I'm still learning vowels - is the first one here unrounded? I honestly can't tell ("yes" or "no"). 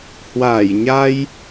yes